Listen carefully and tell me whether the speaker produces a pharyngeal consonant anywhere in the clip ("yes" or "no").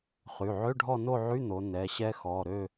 yes